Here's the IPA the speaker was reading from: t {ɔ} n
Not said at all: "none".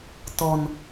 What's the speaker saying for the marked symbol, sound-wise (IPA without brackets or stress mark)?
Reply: ɔ